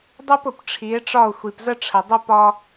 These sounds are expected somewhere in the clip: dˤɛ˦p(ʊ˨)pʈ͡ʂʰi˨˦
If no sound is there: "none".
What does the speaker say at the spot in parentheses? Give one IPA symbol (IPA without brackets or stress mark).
ʊ˨